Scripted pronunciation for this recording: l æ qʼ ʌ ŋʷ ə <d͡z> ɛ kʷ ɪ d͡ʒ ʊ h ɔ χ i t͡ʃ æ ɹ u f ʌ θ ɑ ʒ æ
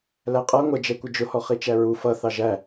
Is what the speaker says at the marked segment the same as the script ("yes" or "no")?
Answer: no